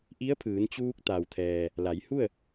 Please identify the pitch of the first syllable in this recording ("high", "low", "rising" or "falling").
rising